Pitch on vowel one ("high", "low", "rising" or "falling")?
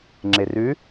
low